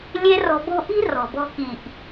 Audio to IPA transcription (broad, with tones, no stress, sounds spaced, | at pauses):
lʲ e˦ r ɔ̤˧ b o̤˦ ʔ i̤˦ r ɔ̤˨ b ɔ̤˧ k i˨ ʔ